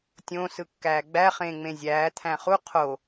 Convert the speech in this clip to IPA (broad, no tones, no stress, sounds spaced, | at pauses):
tʲ õ s ɯ kː æː ɡ͡b æ χ ẽː ŋ͡m ẽ zʲ æː t̪ʰ æ̃ χ u qʰ o